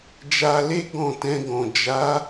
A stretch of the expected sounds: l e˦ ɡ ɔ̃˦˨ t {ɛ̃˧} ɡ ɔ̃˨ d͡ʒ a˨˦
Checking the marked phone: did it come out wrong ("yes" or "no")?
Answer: no